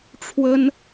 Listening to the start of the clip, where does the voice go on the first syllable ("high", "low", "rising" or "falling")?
high